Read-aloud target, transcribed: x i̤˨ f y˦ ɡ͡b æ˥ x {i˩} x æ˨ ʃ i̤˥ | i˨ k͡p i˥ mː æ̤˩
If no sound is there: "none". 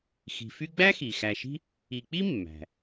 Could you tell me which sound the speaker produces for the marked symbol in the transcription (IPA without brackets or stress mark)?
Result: i˩